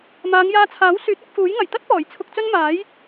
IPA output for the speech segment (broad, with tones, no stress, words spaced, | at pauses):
maː˨˧ŋjaː˧t͡sʰaː˨˥w syː˨˥t̚ɐ˨˥k̚fuː˨˥jŋɐ˨˩j t̪ɐ˥t̚pɔː˨˩j t͡sʰʊ˧k̚t͡sɵ˥n maː˨˥j